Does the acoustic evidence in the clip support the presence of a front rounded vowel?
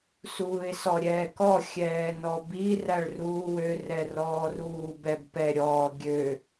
yes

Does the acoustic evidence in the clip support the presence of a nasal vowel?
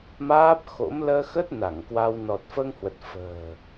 no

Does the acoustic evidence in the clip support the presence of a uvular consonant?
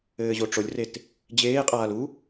yes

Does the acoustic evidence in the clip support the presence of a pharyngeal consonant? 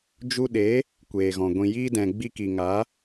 no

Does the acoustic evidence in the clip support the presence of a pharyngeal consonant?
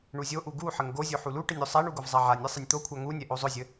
yes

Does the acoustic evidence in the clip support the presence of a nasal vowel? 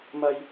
no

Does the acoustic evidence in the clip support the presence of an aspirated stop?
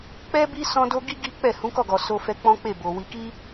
no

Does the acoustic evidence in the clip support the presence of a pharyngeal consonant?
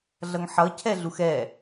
yes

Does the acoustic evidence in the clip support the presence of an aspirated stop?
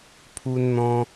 yes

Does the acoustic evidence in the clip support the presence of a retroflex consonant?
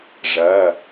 yes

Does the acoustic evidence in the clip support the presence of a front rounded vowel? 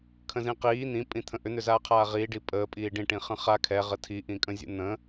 yes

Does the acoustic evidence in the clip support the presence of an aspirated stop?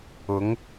no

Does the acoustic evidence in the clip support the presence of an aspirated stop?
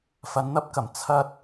yes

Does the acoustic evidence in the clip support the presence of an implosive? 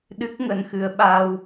yes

